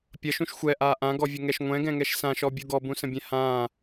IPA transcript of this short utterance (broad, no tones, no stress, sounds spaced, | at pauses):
pʲ ʌ ʃ ũ ʃ xʷ ɛ ʔ aː ʔ ã ɡ ɔ vʲ ə ŋ ɛ ʃ ŋʷ ɛ̃ ɡ ɛ̃ ŋ ɛ ʃ s ã ʃ ɔ bʲ u ɡ ɔ b ũ s ə̃ bʲ ɛ̃ h ãː